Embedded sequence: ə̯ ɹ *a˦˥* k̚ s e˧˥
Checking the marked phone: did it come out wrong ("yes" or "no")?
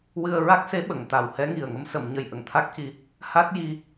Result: no